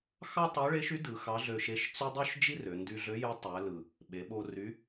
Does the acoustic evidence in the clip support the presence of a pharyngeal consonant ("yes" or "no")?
no